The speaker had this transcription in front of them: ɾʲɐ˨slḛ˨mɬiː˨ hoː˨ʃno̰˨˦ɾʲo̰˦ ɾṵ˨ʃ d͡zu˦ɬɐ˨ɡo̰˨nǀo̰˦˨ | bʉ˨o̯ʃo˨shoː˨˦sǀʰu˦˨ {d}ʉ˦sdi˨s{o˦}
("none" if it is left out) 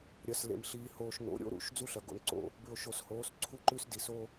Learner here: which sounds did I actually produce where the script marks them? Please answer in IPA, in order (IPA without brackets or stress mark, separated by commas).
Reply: ǃ, o˦